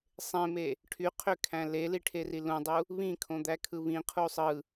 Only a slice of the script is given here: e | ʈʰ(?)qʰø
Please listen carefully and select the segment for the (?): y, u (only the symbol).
y